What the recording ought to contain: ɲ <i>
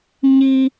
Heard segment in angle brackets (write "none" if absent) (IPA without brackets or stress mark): i